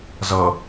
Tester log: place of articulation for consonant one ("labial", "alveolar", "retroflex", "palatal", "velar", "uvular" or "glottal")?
alveolar